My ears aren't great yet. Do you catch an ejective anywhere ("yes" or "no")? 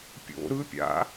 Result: no